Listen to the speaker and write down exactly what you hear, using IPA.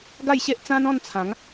ɡ a˥˧ j ɕ e˦ ʔ t͡s ã˦ n ɔ̃˥˧ n t͡sʰ ã˨˦ ŋ

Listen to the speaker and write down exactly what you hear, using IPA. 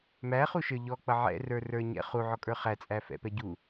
m æ χ u ʃ ə˞ ʎ ɔ k͡p ʌ ʕ ɛ̰ r ə˞ r ə˞ ɲ ɛ̰ χ u ʕ ɔ kʼ ə˞ χ æ t͡sʼ æ f ɛ̰ p ɛ ɟ u

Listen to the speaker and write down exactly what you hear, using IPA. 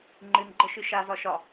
ŋ͡ǃ ɨ n ɡ͡ǃ ə ʃ ɨ ʃ a z ɒ ʃ ɒ

